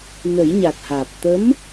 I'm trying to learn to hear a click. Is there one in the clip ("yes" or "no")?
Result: no